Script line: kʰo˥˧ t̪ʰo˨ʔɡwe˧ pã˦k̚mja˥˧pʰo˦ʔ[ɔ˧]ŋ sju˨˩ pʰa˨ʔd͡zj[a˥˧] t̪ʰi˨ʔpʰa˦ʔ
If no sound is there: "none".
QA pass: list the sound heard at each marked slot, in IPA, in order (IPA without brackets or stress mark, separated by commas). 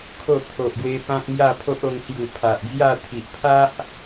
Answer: o˧, a˥˧